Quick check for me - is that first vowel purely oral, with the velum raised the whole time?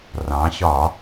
no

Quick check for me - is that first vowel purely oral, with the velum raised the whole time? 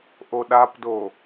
yes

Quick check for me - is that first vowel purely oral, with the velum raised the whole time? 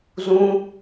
no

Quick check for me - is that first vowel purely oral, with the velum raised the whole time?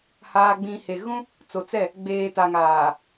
yes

